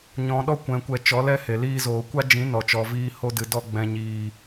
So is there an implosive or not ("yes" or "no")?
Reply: yes